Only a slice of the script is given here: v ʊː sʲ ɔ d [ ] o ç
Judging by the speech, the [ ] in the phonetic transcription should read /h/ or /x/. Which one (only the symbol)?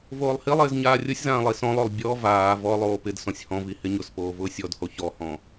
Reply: h